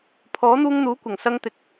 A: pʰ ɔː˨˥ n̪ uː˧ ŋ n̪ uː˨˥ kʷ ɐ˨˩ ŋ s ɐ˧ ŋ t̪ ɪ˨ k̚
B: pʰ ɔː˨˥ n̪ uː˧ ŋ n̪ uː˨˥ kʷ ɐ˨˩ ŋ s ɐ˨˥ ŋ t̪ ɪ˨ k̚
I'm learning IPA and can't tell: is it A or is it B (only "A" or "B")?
A